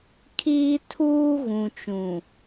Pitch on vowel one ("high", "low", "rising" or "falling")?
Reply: high